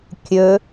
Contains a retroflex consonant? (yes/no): no